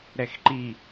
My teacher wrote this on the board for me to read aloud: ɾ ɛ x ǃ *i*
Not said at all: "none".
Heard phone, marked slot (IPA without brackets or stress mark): i